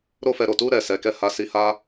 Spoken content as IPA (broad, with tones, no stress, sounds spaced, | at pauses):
ɾ o˦ f ɛ˧ ɾ o˨ t u˧ ɾ ɛ˨ s ɛ˨˦ k ɛ˦˨ h a˧ s i˧ h a˦